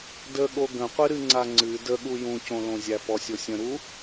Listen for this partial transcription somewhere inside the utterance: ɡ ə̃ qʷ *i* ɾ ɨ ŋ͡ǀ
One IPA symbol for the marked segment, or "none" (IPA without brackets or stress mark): ɨ